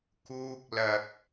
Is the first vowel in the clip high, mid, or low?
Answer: high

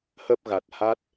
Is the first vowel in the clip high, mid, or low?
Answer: mid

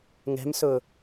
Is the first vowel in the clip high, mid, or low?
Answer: mid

